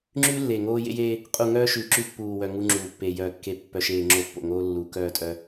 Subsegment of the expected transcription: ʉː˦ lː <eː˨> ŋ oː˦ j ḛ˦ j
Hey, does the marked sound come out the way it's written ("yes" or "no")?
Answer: no